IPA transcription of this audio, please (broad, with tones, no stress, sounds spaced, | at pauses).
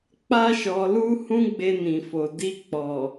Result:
k͡p a˦ ʃ ɔ˧ l u˦ h ũ˦ ɡ͡b e˧ n ĩ˨ f o˨ d i˧ k͡p ɔ˨